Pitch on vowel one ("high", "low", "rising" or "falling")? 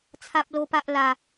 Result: high